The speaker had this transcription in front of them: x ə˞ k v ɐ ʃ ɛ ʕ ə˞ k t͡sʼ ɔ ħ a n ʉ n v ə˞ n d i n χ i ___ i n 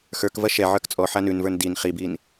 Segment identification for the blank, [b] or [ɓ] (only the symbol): b